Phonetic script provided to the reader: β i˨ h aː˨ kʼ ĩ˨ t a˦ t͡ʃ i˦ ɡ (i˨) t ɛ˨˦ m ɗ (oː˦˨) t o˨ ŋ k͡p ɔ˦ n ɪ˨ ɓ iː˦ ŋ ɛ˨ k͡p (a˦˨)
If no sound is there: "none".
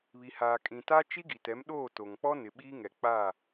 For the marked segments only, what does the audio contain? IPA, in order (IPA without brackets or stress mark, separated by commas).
i˨, oː˦˨, a˦˨